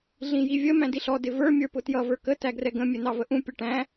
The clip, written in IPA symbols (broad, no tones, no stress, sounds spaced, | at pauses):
ɮ ĩ j i vʲ ə m æ̃ d i ɬ ɔ d ɪ v ə˞ mʲ ə˞ p ʊ t j ʌ v ə˞ k ə t æ ɡ r ɛ ɡ ə̃ mʲ ɛ n ɑ v ə ʔ ũ pʲ ʌ ʈ æ̃